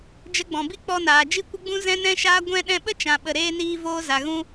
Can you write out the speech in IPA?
d͡ʒ ə˧ ɡ͡b ɔ̃˨ b i˦ k͡p ɔ˧ n aː˨ d͡ʒ i˧ kʷ ə˧ ɡ͡b ũ˧ z ɛ̃˧ n ɛ̃˧ ʃ aː˧ ɡʷ ɛ̃˧ ɗ ɛ̃˧ ɓ ə˦ t͡ʃ ã˨ ɓ ə˨ ɾ eː˧ n iː˧ v oː˧ z a˨ ɣ ũ˧

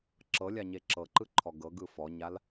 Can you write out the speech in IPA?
ǁ ɤ lʲ a ɲ e ǁ ɤ ǃ ɯ ǃʰ ɔ ɡ ɤ ɡ ɯ f ɔ ɲ a l

